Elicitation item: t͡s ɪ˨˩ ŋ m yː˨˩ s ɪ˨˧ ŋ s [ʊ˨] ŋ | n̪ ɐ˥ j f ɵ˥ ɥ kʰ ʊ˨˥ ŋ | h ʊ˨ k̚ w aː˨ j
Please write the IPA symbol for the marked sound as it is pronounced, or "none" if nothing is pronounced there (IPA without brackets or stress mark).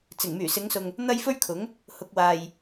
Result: ʊ˨